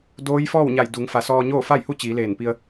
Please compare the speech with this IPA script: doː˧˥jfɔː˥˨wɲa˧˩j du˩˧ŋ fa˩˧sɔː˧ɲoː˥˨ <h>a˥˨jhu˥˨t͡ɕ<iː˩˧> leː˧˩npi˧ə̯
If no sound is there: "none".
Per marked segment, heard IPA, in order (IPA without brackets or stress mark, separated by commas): f, iː˩˧